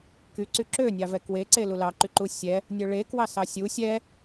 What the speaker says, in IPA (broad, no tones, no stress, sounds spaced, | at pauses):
k y ǀ y ǁ ø nʲ ɑ v ɛ k w e ǀ e l u l ɑ ǃ y ǃ u sʲ ɛ | nʲ œ ɭ e k w ɑ s ɑ sʲ u sʲ ɛ